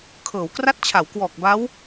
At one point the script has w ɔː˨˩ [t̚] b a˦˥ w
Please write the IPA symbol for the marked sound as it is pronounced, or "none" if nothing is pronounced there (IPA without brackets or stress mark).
k̚